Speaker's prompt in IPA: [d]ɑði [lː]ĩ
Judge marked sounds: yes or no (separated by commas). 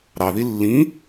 no, yes